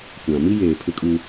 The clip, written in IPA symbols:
kʷã˨ mi˦jeː˨ pʰɪ˦kʼu˦

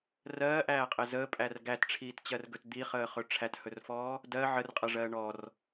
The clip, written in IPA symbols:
rɜːʔæːqʼɘ zəːpʼær ɡætʈ͡ʂʰiːtt͡ɕɜrɡɵt d̪iχəːχɵ ʈ͡ʂʰæthɵrfɔː | dɜ ʕərqʼɜʐɜː ɳɔr

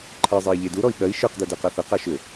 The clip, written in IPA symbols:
ǃʰɜzˤei̯ ʎeduɾɔi̯ ɠɜi̯ ʃə˞qdɜ dɜqaθɜqa ʃʏ

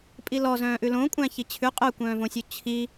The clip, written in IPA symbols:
pʼilɔzœ̃ːʔʉ lõkʷʼæ̃ çit͡ɕʰʉ qʼœkʷœ̃ːvõsʲu t͡ɕʰi

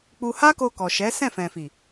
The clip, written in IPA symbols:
k͡pu˧ha˦ko˧ kɔ˨ʃɛ˨˦ sɛ̃˦˨fɛ̃˨fi˨

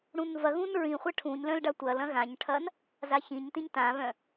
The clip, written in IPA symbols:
ɽũnvɐ ɣũnɹĩχʷɐ ʈʰũɲlœ̃lɖa tʷɐl ɐ̃ɣãɲʈʰɐn | zaçĩɲ tĩɲtãβœ̃

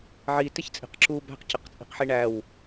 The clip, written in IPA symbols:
ʕitɪçt͡sʼi̤q ǁu bæ̤qcəqt͡sʼi̤qħi ɳæw

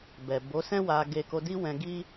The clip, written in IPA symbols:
bɛ˨ bo˨˦sɛ̃˦ wa˧ɡe˧ ko˧di˦wɛ̃˧ ɡi˦

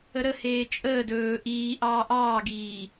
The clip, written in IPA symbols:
əɾəheː t͡ʃʼəːd ɵː ʔiːʔɑː ʔɑːɡiː

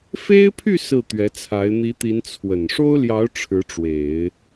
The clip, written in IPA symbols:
fe˥ɪ̯pʰy˥˧ sɹ̩˥˩t̪ɥɛ˧˥t͡sʰa˧˥ɪ̯ n̪i˧˥t̪i˧˥n t͡sʰwə˨˩n ʂo˥ʊ̯ljɑ˧˥ʊ̯ ʈ͡ʂʰɻ̩˧˥ʈ͡ʂwe˨˩˦ɪ̯

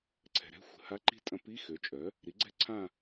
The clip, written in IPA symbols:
ǀʰɛ̤˨ɾɛ̤˧˥˧ xʷə̤˨˩˦ha˧˥˧ǃi̤˥˧tʼɐ̃˧˥ pi˧˥˧xø˩˥ t͡ʃʼœ˩˥ | ɾi˩˥ɡ͡ǀɛ̤˥˧ ǀʰã˥˧

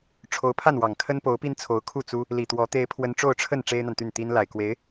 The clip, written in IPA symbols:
ʈ͡ʂʰo˧˥ʊ̯pʰa˥˩nwɑ˨˩ŋ kʰə˥npo˧˥ʊ̯pi˥nt͡sʰo˧˥ʊ̯ kʰu˥˩t͡su˥ | li˨˩t̪wɔ˧˥ t̪e˥ɪ̯pʰwə˥n ʈ͡ʂo˥˧ʊ̯ʈ͡ʂʰə˥˩n ʈ͡ʂe˥ɪ̯n̪a˨nt̪y˥˩nt̪i˥n la˨˩ɪ̯kwe˧˥ɪ̯

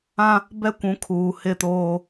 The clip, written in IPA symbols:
ã˦ | bɛ˦kʷũ˨˦kʰuː˨ hɪ˦˨toː˦

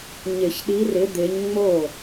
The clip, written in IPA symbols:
ɲɪ˨˩˦ç ɗi˨˦rɪ˨˦d̪ɪː˨˦ɲ ŋ͡mo˥˩

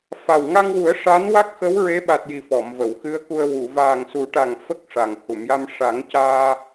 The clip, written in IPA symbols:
fa˨˩wŋa˧ŋwu˨˩˦ə̯ ʂa˧˥n wa˦˥k̚xə˧˥w ɹe˧˥ɓa˨˩t̚ji˨˩ fɔ˨˩˨mvə˨˩˨wxɨ˧˥ə̯ku˧ə̯ wu˨˩˨ vaː˨˩ŋsu˨˩˦ʈa˨˩ŋ fə˦˥k̚ʂa˨˩ŋ hu˨˩˨mja˧m ʂa˨˩˦ŋ caː˧

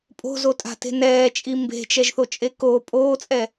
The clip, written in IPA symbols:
pʼo̤zotʼa̤te̤ nɛːt͡ʃʼi mbe̤t͡ʃɛʒθot͡ʃʼe ko pʼoːt͡sʼɛ

